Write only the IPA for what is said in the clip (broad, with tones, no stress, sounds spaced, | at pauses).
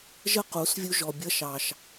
ʒ ə˦ q u˨˦ s vʲ u˦ ʒ ɔ˧ bʲ ʌ˧ ʃ ɑ˨ ʃ